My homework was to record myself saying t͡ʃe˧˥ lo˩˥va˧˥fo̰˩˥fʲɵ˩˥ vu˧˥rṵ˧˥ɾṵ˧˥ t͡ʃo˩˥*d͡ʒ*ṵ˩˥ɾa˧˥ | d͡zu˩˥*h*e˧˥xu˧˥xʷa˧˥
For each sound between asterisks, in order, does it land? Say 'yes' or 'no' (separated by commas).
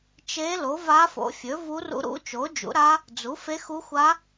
yes, no